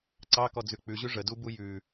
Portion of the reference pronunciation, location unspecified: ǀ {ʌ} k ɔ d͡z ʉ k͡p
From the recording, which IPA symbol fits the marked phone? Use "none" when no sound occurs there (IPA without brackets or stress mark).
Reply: ɑ